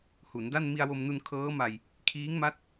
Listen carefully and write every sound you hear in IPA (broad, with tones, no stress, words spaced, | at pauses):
hu˩˦nda˥˩n mi˧a̯wo˧mnu˧n kʰɤː˦˥ma˧j | kʰiː˦˥ŋma˦˥t̚